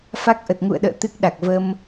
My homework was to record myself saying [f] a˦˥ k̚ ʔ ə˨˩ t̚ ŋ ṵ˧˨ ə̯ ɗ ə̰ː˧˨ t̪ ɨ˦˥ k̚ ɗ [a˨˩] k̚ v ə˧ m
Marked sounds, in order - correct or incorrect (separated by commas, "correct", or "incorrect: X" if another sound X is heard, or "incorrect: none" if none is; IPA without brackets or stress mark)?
correct, correct